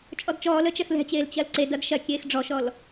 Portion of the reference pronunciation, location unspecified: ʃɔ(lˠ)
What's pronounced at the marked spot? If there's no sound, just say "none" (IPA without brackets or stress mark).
l